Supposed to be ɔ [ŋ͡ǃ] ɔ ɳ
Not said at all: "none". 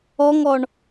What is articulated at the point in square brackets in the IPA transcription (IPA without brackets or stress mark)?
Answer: ŋ